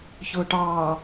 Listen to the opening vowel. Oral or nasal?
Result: oral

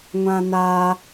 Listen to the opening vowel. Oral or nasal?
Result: nasal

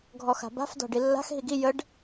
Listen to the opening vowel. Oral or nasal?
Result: oral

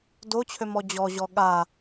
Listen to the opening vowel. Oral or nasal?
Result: oral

